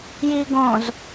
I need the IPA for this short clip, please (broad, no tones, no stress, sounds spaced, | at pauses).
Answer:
j i ɡ õ z